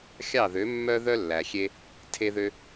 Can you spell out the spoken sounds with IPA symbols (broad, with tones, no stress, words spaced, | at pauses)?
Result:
xʲɑ˥˩ðø˩˥mːœ˥ðœ˥ lːæ˩xʲe˧ | tʰe˧ðø˧